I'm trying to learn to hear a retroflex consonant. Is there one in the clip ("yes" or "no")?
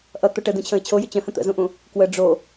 yes